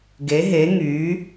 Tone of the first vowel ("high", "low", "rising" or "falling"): rising